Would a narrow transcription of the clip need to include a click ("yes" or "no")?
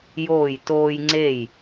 yes